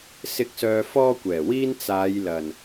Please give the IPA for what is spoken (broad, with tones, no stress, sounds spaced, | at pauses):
s ɪ˨˥ k̚ s œː˨ f ɔː˧ kʷ ɛː˨˩ w iː˧ n t͡s aː˨˧ j l ɐ˨˩ n